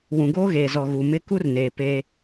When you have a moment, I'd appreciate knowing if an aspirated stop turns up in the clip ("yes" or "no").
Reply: no